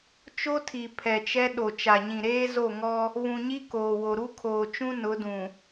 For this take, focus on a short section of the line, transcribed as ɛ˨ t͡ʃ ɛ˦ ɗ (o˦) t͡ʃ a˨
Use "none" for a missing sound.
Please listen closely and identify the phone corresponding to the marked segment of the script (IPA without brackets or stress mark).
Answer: o˨